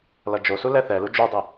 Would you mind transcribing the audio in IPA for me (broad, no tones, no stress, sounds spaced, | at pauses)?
l ʌ d͡ʒ o s u l ɛ θ ɛ l u d͡ʒ u dˤ i